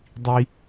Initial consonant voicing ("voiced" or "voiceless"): voiced